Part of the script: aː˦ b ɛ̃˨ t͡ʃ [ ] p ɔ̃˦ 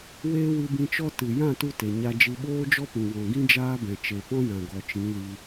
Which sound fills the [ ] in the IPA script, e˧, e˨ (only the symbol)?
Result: e˨